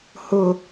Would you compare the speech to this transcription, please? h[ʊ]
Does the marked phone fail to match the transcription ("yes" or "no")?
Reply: no